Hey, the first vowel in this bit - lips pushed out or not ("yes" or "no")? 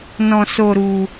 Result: yes